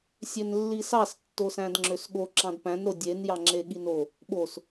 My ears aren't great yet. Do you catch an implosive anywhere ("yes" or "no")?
yes